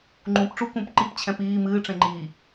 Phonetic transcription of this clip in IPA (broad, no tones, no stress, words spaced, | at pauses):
ŋ͡ǃũːpʈ͡ʂu kũp ǃip t͡ɕʰɛ̃piː mɨː ʈ͡ʂẽŋ͡ǃiː